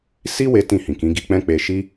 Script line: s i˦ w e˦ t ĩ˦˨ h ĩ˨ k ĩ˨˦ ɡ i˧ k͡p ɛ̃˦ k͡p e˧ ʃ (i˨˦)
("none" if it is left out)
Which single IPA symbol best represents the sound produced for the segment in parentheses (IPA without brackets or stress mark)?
i˦